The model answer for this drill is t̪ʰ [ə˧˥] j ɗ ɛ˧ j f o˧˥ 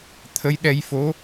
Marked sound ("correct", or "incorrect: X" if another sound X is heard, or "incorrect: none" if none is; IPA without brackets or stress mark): correct